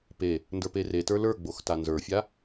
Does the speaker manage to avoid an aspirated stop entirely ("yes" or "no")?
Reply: yes